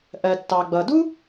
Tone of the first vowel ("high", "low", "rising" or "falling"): low